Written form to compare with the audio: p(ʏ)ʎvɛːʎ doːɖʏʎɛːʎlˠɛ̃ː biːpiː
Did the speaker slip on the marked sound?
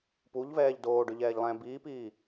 yes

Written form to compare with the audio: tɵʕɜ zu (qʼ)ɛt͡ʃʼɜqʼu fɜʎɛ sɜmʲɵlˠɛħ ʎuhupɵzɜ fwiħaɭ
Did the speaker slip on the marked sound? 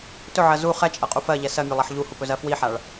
yes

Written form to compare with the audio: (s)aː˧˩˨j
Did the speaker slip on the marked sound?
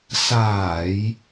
no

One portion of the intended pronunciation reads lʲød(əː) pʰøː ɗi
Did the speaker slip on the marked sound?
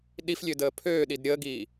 no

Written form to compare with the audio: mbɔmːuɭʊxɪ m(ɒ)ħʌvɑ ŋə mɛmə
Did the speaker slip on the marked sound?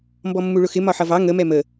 no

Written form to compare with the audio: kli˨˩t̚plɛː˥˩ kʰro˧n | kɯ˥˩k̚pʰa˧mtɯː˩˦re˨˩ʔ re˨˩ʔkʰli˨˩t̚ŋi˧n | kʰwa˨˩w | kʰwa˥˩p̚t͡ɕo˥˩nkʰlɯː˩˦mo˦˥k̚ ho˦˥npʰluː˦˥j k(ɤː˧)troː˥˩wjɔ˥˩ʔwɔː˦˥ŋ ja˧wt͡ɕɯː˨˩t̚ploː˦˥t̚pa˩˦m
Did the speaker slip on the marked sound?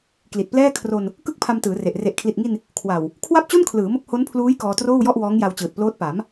yes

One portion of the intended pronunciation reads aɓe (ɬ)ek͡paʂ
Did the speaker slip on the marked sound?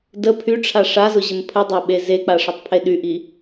yes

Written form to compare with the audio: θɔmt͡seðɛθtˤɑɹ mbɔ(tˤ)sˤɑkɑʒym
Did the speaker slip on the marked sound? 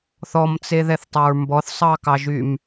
yes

